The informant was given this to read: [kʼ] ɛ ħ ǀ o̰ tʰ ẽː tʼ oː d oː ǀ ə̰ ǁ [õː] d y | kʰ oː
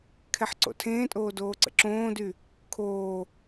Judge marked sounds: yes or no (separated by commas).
no, yes